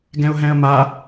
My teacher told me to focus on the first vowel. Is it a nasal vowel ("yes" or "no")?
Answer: yes